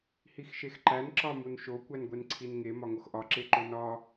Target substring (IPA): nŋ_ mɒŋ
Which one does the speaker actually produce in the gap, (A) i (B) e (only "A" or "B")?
B